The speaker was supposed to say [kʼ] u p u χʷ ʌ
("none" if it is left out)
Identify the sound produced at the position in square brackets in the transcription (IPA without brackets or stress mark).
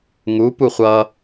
ŋ